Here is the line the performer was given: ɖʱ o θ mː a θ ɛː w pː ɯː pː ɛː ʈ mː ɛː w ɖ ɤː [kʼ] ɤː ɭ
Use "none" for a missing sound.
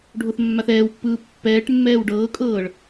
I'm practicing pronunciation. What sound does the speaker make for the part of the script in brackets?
kʼ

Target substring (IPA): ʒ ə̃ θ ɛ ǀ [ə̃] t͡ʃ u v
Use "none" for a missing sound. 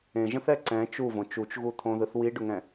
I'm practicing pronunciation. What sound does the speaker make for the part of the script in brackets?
ɛ̃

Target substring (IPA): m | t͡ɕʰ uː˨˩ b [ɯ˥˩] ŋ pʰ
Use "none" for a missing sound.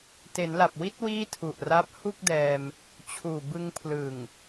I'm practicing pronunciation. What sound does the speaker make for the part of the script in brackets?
ɯ˧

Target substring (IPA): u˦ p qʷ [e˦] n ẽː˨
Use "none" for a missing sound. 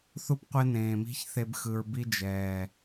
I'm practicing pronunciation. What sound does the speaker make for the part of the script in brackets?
e˦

